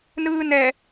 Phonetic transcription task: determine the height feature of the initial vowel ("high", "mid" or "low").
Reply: high